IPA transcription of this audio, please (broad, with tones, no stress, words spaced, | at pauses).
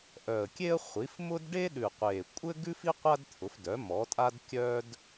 ʔœ˨˩ə̯kʲe˥ə̯χʷi˩˥f mʊ˥d ɖe˥ɗʉ˨˩qʷe˨˩ kʷʼɘ˥ɡʉ˥fi˥ qʷa˥dt̪ʰʊ˩˥fdœ˩˥ mɔ˩˥tʼa˥d kʲœ˥d